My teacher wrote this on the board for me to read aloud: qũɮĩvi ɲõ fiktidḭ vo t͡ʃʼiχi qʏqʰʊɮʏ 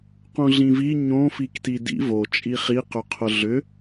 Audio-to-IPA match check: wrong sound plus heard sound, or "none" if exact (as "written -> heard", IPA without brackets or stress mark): none